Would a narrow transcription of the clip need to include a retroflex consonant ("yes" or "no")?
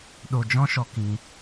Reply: no